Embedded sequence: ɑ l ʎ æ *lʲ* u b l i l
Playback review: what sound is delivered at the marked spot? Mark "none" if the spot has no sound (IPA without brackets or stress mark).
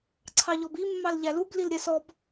l